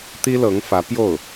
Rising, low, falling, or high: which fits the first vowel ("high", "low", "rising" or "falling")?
high